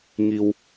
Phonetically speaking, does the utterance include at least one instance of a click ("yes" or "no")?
no